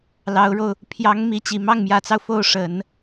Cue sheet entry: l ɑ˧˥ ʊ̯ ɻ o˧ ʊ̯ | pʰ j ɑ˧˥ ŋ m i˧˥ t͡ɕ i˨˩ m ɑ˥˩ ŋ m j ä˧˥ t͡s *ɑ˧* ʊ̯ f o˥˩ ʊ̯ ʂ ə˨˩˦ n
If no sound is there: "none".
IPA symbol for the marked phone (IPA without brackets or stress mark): ɑ˧